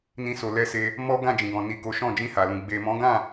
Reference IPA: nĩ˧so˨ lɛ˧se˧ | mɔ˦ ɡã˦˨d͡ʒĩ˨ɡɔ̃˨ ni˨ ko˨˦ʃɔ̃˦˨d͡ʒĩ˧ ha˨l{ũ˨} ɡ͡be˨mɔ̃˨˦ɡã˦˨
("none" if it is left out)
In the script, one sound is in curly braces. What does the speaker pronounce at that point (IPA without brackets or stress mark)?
ũ˨